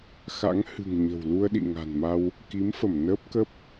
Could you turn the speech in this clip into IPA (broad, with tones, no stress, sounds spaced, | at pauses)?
x a̰˧˥ ŋ h ɨ̤˨˩ ŋ ɲ ə̤˨˩ w l u˧ ə̯ ɗ ḭ˧˨ ŋ a̤˨˩ n m a˧ w | k i˨˦ m f ə˧˩ m n əː˦˥ p̚ k ə˦˥ p̚